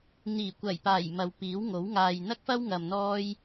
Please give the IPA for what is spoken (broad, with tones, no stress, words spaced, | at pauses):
n̪iː˨˩kʷɐ˨˩jpaː˨˩j mɐ˨wpiː˨˥wŋo˨˥w ŋaː˨jn̪ɐ˥k̚fɐ˥w ŋɐ˨mn̪ɔː˧j